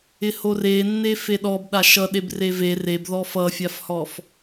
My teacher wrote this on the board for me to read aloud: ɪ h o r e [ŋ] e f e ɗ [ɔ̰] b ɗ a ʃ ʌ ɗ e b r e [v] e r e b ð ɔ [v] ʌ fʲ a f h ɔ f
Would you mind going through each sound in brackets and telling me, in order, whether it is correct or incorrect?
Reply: incorrect: nː, incorrect: ɔ, correct, incorrect: f

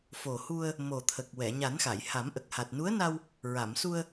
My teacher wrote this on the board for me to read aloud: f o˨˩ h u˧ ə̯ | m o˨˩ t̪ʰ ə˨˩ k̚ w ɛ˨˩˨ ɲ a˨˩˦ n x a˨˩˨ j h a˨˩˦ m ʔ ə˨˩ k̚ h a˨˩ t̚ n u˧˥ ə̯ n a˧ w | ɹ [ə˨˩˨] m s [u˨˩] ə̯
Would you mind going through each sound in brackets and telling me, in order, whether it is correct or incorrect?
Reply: incorrect: a˨˩˨, incorrect: u˧

